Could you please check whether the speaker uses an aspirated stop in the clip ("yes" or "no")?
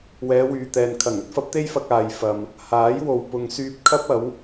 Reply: yes